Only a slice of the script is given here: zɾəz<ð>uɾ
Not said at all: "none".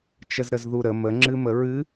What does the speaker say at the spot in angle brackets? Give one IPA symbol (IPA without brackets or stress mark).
ð